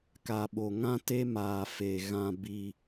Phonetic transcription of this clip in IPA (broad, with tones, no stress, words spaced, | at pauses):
ka˨ɓo˨ ŋã˦te˦ maː˨fe˨ ɣã˦ bi˦